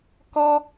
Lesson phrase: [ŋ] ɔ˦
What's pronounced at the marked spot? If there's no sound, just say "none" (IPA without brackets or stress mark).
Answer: k